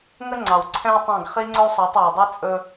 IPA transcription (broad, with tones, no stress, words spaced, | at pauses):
ŋə˦ŋ͡ǀɑ˨w ǀʰɛ̃˦wtˤɑ̃˦˨ɡ χi˦ŋ͡ǀɵ˦u̯sˤɑ˨˦tˤ we˨dˤi˦ t͡sʼɵ˦